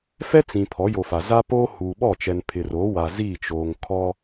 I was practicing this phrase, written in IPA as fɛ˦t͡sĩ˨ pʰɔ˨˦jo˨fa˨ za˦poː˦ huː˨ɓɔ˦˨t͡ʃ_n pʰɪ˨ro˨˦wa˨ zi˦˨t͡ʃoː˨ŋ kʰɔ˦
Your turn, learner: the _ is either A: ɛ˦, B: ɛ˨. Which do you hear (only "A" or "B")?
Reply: B